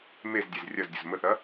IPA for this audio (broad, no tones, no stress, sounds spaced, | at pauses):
m e z dʲ e z rʲ ɐ z dʲ ʊ z m ə θ ɐ